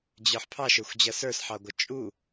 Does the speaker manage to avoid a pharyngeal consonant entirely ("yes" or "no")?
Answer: no